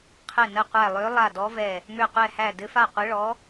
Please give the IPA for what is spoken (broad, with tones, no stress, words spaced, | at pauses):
qʰɘ˧˩ nə˧˩qʷæ˧˩ lˠø˨˦ lˠa˧˩dɔ˨˦vɛ˧˩ | mø˧˩qʷɛ˧˩hæ˧˩ dɘ˨˦fa˧˩qʷɘ˨˦ ɭɔ˨˦